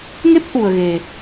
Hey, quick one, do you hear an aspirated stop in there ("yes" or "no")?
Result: no